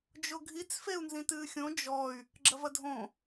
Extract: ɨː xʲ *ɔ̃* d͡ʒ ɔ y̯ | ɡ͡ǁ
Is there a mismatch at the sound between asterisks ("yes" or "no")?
yes